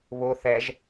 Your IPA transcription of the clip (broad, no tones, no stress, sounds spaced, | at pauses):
β ʊ θ ɛ ʒ